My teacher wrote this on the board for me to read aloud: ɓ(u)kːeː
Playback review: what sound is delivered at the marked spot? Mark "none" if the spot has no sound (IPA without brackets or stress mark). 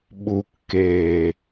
u